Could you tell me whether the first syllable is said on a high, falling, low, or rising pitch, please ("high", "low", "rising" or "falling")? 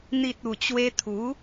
low